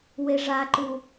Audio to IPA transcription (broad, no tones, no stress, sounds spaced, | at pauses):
w e ʐ a ǃ u